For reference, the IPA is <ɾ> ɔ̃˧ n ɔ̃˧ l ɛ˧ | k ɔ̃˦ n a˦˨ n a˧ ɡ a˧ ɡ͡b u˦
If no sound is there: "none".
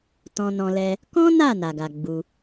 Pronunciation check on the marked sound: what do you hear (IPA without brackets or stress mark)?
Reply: t